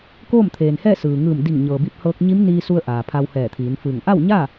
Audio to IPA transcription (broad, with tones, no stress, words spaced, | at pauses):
koː˥˨mt̪ʰeː˩nhɛː˥˨ sɯː˩ŋɯː˧˩m di˧˩ŋɲɤː˩bi˧p̚hɤː˧k̚ ɲi˧˥mniː˧su˧ə̯ ʔaː˩ pʰa˧whɛː˧˩t̪ʰiː˩˧nfɯː˧˩ŋ ʔa˥˨wɲa˥˨